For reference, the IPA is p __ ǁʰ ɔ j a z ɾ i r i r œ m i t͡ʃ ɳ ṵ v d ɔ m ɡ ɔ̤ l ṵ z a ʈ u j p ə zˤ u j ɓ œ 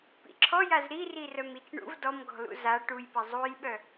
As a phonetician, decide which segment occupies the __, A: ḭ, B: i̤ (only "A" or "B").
A